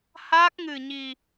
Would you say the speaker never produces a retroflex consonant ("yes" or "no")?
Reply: yes